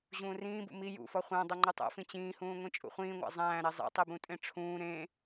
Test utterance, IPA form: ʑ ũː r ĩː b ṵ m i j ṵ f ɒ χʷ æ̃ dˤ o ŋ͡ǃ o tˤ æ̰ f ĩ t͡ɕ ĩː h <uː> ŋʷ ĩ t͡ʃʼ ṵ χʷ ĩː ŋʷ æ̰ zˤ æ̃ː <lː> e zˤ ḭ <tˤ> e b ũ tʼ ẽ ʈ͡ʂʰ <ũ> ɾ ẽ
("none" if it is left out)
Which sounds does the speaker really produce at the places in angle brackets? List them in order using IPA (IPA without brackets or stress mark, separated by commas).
ũː, ɾ, tˤ, ũː